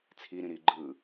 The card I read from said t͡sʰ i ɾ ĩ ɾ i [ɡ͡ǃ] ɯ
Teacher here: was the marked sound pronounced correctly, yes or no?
yes